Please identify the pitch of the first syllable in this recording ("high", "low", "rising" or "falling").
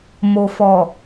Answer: low